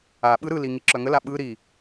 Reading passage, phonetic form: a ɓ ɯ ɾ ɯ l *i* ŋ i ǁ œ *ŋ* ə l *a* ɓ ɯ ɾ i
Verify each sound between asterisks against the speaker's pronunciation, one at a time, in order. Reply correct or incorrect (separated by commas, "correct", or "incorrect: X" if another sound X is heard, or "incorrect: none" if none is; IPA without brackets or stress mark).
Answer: correct, correct, correct